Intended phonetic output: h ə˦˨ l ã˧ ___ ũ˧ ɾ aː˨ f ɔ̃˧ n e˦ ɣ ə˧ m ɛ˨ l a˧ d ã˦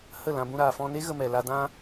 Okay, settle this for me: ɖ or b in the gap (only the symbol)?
b